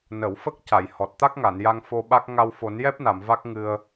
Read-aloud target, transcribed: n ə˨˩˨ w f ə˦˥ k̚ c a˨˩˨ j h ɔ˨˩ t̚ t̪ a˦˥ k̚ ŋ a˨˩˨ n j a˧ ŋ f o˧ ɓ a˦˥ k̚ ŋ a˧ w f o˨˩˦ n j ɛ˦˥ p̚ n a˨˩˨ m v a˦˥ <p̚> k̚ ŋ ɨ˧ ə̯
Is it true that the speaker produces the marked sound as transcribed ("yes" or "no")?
no